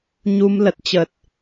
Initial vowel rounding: rounded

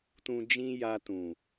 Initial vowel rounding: rounded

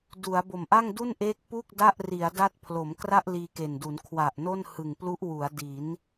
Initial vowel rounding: rounded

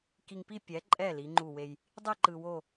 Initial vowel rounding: unrounded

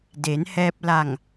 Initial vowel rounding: unrounded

